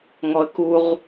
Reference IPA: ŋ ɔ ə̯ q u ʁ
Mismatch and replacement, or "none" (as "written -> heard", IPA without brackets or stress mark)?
q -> k